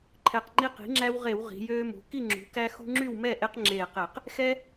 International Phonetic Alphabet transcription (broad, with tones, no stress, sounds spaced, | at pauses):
ǃʰ ɛ˧˩ q ŋ͡ǃ i˦ q i̤˩˥ ŋ͡ǁ æ˦ w ʁ e˧˩˧ w ʁ i̤˩˧ j øː˦ m ṳ˩˧ k i˥˨ ŋ͡ǁ ṳ˩˧ k æ˦ x ṳ˦ ŋ͡ǁ y˥˨ w m ɛ˥˨ ʔ e˦ q ŋ͡ǁ eː˧˩ q e˧˩˧ q | x ɛ˦